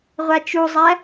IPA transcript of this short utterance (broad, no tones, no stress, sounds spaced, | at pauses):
ʁʷ a t͡ʃ u zˤ æ